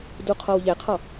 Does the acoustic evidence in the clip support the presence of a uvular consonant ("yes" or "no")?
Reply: yes